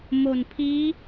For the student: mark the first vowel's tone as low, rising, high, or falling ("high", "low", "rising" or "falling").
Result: low